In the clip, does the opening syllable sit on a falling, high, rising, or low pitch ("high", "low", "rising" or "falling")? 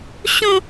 high